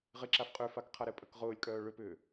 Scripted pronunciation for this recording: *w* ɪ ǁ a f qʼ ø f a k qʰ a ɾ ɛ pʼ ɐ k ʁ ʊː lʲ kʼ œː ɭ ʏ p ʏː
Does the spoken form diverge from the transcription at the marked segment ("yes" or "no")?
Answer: yes